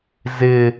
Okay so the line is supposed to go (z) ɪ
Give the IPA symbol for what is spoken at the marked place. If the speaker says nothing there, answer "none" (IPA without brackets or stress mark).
z